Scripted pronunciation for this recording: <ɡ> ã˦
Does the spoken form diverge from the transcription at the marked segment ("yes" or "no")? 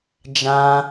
yes